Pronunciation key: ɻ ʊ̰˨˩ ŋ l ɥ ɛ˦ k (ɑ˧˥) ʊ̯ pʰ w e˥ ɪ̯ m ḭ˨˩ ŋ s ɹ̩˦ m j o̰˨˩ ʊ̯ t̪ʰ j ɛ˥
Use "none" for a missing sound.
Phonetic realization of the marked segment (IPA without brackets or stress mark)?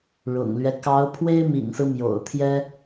ɑ˧˥